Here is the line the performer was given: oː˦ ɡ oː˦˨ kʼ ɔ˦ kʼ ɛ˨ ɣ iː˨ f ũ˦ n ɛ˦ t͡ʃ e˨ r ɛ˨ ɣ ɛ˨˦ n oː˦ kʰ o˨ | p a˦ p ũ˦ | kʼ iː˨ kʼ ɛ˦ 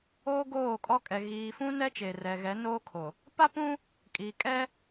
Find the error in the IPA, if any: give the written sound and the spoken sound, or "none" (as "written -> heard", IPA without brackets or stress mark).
none